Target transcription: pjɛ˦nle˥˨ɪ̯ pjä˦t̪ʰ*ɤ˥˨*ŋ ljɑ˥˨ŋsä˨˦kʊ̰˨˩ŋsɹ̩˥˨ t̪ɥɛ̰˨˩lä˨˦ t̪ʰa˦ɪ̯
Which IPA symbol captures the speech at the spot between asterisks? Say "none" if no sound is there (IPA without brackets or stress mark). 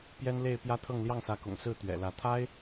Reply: ɤ˥˨